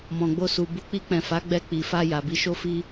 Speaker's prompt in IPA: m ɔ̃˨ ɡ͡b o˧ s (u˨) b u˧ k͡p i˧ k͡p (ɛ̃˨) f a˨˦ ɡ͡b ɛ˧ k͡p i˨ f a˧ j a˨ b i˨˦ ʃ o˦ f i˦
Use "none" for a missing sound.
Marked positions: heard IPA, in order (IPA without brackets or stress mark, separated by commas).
u˨, ɛ̃˨